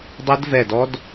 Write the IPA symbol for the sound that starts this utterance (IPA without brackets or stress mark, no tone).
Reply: dˤ